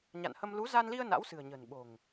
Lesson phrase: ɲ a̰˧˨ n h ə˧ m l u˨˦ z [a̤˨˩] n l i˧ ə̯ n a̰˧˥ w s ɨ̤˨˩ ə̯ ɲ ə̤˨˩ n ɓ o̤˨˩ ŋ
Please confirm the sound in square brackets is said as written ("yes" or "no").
no